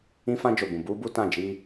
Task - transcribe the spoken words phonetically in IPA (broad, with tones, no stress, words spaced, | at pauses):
ĩ˦fã˦d͡ʒo˨bũ˨ buː˦bu˦tã˦˨ d͡ʒiː˦